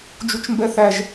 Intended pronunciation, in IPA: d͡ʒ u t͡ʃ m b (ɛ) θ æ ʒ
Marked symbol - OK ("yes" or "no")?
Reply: yes